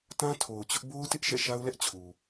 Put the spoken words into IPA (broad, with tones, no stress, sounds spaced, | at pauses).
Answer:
t ã˦ tʰ o˨ ʊ̯ t͡ɕ ʊ˦ ʔ b o˦ ʊ̯ t ɪ˦ ʔ ʃ ɛ̰˦˨ ʃ a˦ ʊ̯ l ɛ˦ ʔ t͡ɕʰ u˨